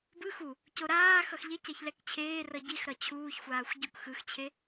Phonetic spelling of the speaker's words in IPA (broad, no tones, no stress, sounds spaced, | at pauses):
b ɯ x u | c o ɾ aː x ʌ x ʎ e c ɛ ç l ɛ k t͡ɕʰ eː r ʌ ɟ i x ɾ ʌ t͡ɕʰ uː ç xʷ aː xʷ ɟ u k x ɯ x t͡ɕʰ e